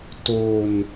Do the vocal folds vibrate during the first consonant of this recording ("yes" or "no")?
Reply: no